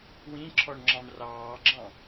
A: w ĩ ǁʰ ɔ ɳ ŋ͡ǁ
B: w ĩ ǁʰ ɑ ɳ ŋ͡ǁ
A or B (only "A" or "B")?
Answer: A